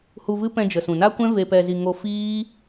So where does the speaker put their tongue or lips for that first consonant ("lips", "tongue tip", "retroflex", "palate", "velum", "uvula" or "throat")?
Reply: throat